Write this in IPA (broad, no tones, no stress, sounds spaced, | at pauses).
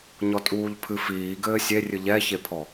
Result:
ɲ ɔ tʼ uː ʎ pʰ ɨ f iː ɡ ɘː sʲ e rʲ ɨ ʎ ɛ ç e pʰ ɔ